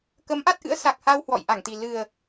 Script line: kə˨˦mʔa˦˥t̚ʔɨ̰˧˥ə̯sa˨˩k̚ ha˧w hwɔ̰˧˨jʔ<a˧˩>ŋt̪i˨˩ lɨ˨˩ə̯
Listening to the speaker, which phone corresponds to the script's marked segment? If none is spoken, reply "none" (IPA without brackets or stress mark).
a˧˩